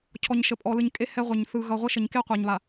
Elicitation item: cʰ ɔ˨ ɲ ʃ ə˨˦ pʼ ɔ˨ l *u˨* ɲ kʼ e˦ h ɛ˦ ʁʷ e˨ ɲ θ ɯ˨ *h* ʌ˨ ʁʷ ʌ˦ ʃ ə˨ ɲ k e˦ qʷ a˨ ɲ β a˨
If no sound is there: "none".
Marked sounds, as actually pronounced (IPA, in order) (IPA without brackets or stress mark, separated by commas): ɯ˨, ɣ